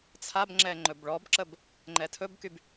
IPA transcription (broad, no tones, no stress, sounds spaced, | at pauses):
t͡sʰ a b ŋ͡ǁ ɛ ŋ͡ǃ ɵ b ɭ ɔ b ǁ ə b | ŋ͡ǃ ɛ tʰ ɵ b k y b